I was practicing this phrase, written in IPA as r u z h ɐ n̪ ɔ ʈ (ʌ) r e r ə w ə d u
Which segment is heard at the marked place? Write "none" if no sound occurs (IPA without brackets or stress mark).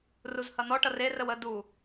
ʌ